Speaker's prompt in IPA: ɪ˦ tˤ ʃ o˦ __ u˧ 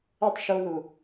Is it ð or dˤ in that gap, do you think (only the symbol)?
ð